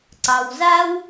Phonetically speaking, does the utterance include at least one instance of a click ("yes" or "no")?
yes